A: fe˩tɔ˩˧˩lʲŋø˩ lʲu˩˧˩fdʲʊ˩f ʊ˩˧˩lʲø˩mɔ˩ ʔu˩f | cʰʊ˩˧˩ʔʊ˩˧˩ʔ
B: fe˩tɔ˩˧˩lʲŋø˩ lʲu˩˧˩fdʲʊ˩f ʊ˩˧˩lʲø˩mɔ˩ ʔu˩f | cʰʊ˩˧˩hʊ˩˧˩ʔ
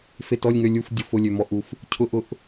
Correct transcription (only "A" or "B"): A